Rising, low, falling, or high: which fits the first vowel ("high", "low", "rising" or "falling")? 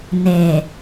low